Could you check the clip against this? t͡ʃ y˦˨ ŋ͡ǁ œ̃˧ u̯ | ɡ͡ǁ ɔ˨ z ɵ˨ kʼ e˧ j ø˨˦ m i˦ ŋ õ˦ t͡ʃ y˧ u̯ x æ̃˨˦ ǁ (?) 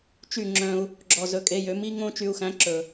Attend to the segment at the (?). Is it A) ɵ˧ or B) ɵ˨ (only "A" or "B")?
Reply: B